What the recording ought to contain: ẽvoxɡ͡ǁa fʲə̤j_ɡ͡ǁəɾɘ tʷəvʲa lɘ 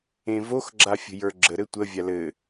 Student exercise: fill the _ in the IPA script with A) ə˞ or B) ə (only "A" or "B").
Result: A